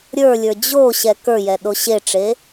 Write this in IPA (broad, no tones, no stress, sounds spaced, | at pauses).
ɾʲ ə˞ lʲ ə˞ d͡ʑ o ɕ ɛ k ə˞ j ɛ ɗ o ɕ e ʈ͡ʂ e